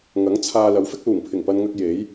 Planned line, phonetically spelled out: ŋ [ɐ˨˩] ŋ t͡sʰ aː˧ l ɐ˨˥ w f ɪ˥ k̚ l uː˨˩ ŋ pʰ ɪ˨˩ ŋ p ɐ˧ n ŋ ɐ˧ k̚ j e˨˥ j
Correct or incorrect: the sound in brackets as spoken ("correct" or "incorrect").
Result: incorrect